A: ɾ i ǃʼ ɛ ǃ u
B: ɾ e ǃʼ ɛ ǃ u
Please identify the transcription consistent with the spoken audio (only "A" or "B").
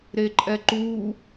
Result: B